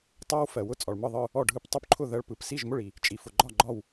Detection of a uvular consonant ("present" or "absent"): absent